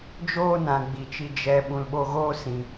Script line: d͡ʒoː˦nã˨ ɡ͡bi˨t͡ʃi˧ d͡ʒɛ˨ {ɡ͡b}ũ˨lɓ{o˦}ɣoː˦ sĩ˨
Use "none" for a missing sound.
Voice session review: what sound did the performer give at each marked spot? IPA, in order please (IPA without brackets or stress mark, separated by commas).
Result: ɓ, o˧